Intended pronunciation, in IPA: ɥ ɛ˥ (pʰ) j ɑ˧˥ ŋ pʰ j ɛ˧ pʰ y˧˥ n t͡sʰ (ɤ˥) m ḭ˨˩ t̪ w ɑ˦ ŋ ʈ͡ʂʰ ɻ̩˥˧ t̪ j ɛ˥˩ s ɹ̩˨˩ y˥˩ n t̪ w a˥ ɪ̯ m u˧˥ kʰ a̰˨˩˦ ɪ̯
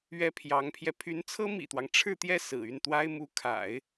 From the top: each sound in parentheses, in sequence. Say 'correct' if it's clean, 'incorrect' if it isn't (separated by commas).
correct, correct